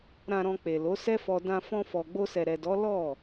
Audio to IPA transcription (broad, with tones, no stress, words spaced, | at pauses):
ɾã˨ɾɔ̃˨ k͡pe˨ lo˨˦sɛ˦fɔ˧ dã˧ fɔ̃˧fɔ˨ɡ͡bo˧sɛ˨ ɾɛ˨dɔ˨˦ lɔ˦˨